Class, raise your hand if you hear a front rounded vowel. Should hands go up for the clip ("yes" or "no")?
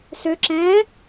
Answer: yes